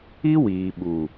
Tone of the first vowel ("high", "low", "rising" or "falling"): high